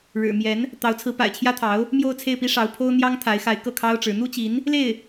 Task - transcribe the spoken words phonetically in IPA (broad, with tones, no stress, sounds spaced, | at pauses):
ɻ ɻ̩˨˩ m j ɛ˧˥ n | t̪ ɑ˧˥ ʊ̯ t͡sʰ ɹ̩˧˥ p a̰˨˩ ɪ̯ t͡ɕʰ j ä˥ t̪ʰ ɑ˧˥ ʊ̯ | m j o˥˧ ʊ̯ t͡sʰ e˥˩ ɪ̯ p i˥ ʂ ɑ˧˥ ʊ̯ pʰ o˥ ʊ̯ n̪ j ɑ˥ ŋ t̪ʰ a˧˥ ɪ̯ x a˧˥ ɪ̯ k ɤ˥˩ kʰ ɑ˥ ʊ̯ ʈ͡ʂ ɻ̩˧˥ n̪ u˥ t͡ɕ i˧˥ n | l e˥˩ ɪ̯